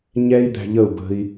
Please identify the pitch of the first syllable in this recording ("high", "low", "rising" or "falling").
high